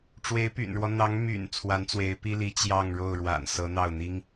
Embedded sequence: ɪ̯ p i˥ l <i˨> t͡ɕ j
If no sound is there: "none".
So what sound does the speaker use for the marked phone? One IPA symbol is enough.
i˧˥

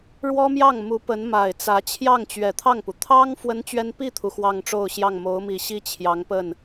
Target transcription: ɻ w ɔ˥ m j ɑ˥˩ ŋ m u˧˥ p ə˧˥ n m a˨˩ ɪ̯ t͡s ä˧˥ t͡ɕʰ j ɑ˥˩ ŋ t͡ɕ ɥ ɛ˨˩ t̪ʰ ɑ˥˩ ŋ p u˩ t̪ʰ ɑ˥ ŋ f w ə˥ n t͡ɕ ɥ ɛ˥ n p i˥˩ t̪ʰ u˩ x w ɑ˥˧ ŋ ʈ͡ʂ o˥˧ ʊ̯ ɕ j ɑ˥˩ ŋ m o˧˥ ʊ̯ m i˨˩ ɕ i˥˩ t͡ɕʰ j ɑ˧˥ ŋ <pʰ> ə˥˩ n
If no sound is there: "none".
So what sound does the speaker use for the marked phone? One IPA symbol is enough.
p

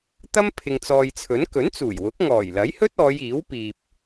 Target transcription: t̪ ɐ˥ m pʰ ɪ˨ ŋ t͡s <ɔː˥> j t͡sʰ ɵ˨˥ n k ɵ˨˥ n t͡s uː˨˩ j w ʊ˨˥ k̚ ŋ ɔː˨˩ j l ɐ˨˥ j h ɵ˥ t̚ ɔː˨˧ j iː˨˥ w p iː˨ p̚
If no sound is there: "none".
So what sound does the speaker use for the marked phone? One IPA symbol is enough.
ɔː˨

